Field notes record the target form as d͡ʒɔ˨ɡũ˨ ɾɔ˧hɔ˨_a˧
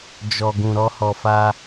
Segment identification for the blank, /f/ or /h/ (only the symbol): f